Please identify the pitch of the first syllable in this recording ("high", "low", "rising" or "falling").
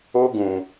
high